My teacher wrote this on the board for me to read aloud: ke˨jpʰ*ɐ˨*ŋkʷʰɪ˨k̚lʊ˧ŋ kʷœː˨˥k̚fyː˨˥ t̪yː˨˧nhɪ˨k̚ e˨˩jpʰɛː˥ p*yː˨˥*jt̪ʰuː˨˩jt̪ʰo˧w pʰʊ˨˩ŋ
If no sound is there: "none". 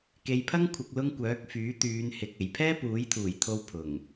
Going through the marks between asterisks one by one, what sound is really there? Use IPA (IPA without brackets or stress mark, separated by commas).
ɐ˥, uː˨˥